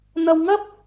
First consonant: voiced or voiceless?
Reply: voiced